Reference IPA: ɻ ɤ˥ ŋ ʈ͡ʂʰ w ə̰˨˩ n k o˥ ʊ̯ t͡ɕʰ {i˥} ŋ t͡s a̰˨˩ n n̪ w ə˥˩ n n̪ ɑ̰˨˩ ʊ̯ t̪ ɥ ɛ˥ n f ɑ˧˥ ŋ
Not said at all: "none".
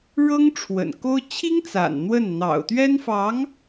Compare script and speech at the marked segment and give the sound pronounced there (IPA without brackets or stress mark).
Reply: i˥